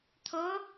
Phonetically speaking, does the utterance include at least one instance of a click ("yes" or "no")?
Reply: no